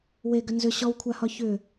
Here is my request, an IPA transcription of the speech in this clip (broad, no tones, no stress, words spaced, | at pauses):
we ɡʏnzʏ ɕɔwkʷʰahɒ çʏ